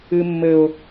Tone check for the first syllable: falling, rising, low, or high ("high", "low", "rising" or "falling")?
low